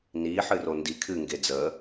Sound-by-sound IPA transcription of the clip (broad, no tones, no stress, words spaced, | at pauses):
ni ħɨrondi kʰɨŋɡe d͡zə